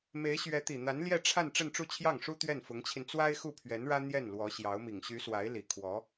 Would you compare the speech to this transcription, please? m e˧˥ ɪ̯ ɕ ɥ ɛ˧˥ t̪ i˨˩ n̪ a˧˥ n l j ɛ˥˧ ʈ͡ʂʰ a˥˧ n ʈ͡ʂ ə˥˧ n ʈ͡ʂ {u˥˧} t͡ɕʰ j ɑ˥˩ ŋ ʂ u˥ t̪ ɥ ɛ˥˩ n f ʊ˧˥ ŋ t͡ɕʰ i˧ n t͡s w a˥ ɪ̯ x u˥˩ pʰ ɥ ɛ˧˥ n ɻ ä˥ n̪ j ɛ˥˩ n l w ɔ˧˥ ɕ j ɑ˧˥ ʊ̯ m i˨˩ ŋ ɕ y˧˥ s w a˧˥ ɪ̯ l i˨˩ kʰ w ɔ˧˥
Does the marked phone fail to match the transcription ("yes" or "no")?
no